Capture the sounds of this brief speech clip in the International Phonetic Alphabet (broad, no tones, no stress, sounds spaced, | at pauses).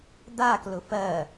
d̪ a k l ʊ f ɜ